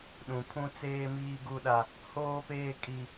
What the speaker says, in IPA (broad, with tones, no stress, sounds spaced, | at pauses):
ɗ ũ˨ pʰ ũ˦ t͡s eː˦ m iː˦ ɡ u˦ ɗ a˦ | h oː˦ p eː˦ kʼ i˦